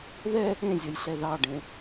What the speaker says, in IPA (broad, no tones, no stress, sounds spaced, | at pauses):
ð ɛ | ẽ zʲ ʌ j ɬ ɛ ð ɑ ɖ ẽ